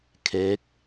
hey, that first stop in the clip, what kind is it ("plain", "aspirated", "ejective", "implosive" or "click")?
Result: aspirated